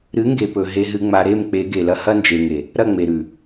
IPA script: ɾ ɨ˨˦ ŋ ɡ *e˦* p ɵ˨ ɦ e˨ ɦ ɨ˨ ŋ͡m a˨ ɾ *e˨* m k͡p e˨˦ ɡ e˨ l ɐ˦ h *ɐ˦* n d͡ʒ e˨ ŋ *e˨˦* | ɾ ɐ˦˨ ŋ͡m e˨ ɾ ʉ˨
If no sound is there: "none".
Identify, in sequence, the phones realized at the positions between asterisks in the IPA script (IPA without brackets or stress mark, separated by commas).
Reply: e˨, e˦˨, ɐ˦, e˨